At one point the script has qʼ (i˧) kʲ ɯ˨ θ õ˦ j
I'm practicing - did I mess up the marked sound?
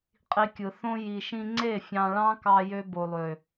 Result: no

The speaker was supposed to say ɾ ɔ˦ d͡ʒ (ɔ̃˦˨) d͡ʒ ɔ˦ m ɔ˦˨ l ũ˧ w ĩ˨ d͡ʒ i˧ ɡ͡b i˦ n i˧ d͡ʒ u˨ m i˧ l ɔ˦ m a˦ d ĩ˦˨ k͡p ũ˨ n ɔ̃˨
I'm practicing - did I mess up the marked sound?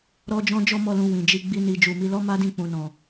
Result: yes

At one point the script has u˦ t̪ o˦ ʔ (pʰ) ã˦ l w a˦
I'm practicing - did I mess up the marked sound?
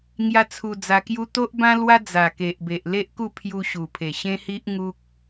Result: yes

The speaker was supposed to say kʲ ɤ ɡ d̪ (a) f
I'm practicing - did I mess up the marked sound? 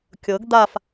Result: no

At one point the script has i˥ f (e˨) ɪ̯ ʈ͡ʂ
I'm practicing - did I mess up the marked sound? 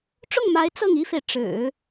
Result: no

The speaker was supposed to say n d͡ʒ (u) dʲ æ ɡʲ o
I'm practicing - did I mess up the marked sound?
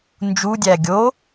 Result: no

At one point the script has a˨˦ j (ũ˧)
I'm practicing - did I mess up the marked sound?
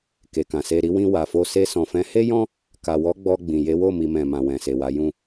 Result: yes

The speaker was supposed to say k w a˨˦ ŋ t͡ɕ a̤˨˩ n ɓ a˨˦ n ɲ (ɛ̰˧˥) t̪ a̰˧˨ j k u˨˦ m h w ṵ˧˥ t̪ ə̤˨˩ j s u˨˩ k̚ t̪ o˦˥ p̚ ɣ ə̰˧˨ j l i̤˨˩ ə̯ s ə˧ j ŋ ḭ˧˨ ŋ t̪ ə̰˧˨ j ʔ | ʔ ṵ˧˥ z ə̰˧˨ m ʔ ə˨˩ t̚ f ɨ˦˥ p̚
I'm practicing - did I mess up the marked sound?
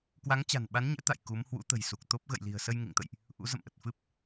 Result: no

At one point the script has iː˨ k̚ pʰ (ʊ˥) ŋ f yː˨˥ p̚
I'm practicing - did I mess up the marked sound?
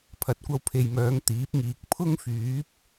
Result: no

